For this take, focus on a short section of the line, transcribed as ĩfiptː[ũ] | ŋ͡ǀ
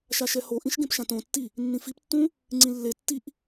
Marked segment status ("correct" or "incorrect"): correct